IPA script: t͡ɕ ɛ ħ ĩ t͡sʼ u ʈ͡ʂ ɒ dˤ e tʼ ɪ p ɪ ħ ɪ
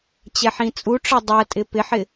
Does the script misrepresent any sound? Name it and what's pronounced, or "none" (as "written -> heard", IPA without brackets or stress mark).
e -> ɛ